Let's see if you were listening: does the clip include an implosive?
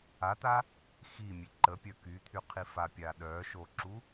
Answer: yes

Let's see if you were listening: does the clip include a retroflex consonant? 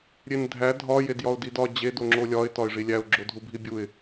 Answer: yes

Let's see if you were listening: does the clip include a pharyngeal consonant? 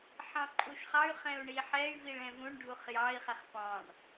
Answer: yes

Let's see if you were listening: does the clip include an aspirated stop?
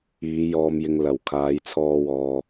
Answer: yes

